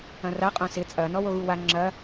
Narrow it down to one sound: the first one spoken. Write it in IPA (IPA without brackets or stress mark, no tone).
ɐ̃